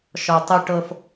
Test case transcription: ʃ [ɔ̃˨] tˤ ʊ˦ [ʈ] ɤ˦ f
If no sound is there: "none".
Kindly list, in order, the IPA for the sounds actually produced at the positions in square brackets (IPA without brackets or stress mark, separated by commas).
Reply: ɔ˨, ʈ